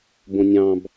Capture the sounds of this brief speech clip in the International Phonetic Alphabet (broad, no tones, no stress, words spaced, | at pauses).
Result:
bõnʲɑ̃b